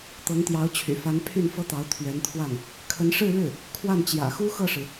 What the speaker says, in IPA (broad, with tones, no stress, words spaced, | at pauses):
t̪ɤ˧˥ŋt̪jɑ˧˥ʊ̯t͡ɕʰy̰˨˩fa˧˥n pʰy˥˩n fɤ˥t̪ɑ˧˥ʊ̯ t̪ʰɥɛ˧˥nt̪ʰwa˥˩n | kʰə˧˥nʂɻ̩˥˧ɻɻ̩˥˩ | kʰwa˥˩nt͡ɕjä̰˨˩xu˥ xɤ˥˩ʂɻ̩˩